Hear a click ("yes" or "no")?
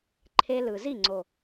yes